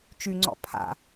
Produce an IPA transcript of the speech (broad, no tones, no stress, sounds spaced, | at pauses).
t͡ʃ y ŋ͡ǀ ɔ̰ pʰ a̰